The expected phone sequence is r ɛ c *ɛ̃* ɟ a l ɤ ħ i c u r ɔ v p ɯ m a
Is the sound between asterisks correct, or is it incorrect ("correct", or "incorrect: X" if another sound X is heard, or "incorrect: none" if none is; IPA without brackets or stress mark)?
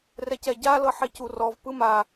incorrect: ɛ